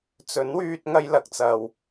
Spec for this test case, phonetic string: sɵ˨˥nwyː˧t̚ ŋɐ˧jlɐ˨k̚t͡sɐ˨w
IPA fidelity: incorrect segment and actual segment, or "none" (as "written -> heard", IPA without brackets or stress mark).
s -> t͡s